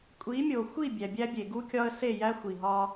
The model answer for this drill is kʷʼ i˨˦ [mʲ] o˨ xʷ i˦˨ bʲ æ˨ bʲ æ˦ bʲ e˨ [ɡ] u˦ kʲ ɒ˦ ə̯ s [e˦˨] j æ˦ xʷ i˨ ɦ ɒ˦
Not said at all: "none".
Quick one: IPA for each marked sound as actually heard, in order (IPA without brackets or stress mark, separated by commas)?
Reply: mʲ, ɡ, e˦˨